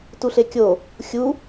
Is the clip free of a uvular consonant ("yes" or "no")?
yes